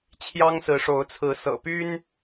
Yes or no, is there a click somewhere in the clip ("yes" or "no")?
no